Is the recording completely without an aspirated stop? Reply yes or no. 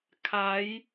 no